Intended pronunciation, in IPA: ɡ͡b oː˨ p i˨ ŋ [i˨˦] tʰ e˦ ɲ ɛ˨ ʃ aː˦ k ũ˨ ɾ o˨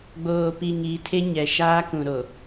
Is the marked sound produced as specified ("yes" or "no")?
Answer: yes